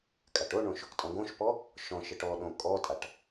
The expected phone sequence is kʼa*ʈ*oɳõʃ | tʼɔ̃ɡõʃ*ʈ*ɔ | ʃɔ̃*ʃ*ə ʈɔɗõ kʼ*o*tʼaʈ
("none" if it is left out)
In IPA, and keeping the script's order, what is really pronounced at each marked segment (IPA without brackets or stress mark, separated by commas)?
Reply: ʈ, p, ʃ, ɔ